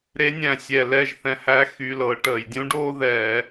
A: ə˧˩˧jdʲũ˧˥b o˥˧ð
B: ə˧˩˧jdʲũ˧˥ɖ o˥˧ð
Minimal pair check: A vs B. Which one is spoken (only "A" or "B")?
B